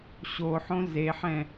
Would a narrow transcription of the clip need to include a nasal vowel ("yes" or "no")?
yes